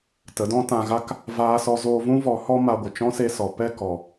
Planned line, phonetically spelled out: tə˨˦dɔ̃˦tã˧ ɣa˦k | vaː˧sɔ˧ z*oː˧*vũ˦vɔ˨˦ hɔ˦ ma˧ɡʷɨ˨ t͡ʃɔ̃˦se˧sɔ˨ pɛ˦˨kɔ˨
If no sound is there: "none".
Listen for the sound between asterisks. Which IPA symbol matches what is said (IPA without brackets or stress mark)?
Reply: oː˧